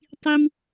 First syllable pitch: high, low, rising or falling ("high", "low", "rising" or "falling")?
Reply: high